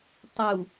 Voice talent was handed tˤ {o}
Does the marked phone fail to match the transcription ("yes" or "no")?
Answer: yes